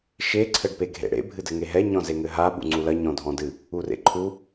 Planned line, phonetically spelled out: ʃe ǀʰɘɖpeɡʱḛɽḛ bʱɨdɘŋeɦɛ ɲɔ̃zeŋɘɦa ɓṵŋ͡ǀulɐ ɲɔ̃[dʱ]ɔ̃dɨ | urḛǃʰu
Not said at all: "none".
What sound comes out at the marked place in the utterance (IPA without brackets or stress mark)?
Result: dʱ